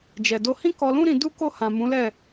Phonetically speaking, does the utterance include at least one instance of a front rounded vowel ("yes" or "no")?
no